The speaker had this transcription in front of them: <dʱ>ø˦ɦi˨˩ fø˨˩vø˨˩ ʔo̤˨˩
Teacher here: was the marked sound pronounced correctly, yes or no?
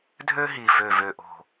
yes